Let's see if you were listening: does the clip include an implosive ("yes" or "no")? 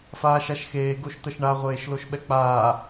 yes